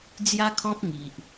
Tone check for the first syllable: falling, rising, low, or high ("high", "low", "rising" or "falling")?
high